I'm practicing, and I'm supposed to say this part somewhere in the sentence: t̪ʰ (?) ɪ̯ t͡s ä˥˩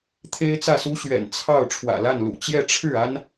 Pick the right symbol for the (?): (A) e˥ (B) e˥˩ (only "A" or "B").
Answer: A